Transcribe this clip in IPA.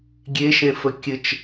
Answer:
ɡʲ e ʃ ẽ f ə kʲ ɘ t͡ʃ

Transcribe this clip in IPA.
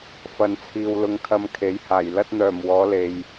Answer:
f ɐ˨˧ n t͡sʰ iː˨ w l ʊ˧ ŋ kʰ ɐ˧ m kʰ e˨˥ j h aː˨˩ j l ɐ˧ t̚ n̪ œː˨˩ m w ɔː˨˧ l e˨ j

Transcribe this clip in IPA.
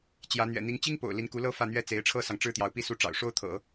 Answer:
t͡ɕ j ä˧˥ n̪ ɥ ɛ̰˨˩ n̪ i˧˥ ŋ t͡ɕ i˥ ŋ p o̰˨˩ ʊ̯ l i˧˥ n k u˧˥ l ɤ˥ f ä˥˩ n̪ ɥ ɛ˥ t͡s e˧˥ ɪ̯ ʈ͡ʂʰ ɤ˥ s ɑ˨ ŋ ʈ͡ʂ ɻ̩˥ t̪ j ɑ˧˥ ʊ̯ p i˥˧ s u˥˩ ʈ͡ʂ ɑ̰˨˩ ʊ̯ ʂ o˥ ʊ̯ t̪ʰ ɤ̰˨˩˦

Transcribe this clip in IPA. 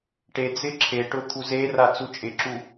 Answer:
ʈ e d͡z ɪ ǁʰ e ʈ ʊ t̪ʰ u z e r a t͡s u t͡ʃʼ ɪ ǁ u

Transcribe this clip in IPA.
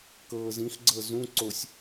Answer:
k ɤː z ĩ x ɡ͡ǀ ɤ z ũ ǀ o sʲ

